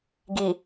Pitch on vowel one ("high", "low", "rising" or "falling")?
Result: low